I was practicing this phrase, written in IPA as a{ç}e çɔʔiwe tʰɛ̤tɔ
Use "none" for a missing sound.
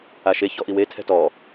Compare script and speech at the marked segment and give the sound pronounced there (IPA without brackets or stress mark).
ʃ